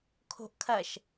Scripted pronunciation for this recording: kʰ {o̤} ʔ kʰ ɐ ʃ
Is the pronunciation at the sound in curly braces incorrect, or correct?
correct